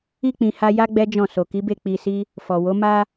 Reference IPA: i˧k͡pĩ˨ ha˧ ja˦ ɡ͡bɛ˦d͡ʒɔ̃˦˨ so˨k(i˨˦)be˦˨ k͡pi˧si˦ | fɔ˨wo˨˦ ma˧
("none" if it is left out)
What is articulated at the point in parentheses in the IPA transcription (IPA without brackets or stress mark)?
i˨˦